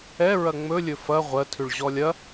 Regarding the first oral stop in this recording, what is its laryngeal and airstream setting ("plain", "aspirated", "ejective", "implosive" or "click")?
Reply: aspirated